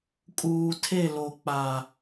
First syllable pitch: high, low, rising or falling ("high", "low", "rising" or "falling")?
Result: low